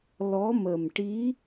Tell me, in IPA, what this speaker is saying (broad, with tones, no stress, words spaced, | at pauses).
lɔ˧˥mə˨˩mʈi˧˥